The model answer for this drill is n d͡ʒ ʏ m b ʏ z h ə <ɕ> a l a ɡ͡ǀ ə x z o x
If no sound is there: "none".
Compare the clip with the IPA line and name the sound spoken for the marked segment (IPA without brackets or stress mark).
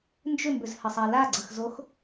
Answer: sˤ